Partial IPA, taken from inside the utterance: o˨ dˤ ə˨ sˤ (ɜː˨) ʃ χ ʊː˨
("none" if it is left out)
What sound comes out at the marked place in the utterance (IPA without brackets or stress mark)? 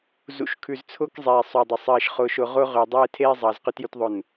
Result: ɜː˨